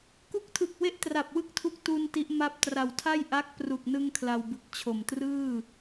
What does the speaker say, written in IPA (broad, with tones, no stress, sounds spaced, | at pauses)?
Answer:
k u˦˥ k̚ tʰ ɯ˨˩ k̚ w e˥˩ ʔ t r a˨˩ p̚ w ɯ˥˩ k̚ tʰ u˦˥ k̚ t u˧ n t i˦˥ ʔ m a˥˩ p̚ t r a˨˩ w tʰ a˥˩ j ʔ a˦˥ k̚ p r u˨˩ k̚ n ɯ˧ ŋ kʰ l a˧ w b ɯ˨˩ k̚ t͡ɕʰ o˨˩ m t r ɯː˥˩